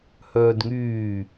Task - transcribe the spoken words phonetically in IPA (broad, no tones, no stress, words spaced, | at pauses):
hœːdŋyː